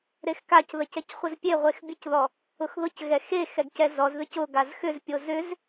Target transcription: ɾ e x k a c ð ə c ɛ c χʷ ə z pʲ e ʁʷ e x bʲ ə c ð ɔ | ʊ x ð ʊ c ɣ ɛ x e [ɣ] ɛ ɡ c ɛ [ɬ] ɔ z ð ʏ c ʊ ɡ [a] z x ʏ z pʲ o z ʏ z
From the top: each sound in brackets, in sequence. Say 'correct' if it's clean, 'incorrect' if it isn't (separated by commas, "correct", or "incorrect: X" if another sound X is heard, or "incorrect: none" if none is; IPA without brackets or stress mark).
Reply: incorrect: x, incorrect: z, correct